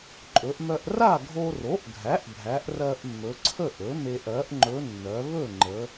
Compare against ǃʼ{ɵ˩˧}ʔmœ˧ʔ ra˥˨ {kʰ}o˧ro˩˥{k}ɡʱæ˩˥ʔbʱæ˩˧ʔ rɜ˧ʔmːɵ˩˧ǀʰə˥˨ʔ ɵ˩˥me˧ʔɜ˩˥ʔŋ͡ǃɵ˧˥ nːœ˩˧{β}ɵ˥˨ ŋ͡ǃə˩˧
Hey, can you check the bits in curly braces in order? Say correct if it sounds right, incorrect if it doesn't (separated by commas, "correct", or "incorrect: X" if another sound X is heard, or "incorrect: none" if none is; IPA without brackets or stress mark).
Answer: correct, incorrect: ɡʱ, incorrect: ʔ, correct